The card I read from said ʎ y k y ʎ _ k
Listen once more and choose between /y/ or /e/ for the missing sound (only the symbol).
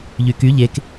e